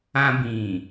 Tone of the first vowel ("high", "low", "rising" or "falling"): high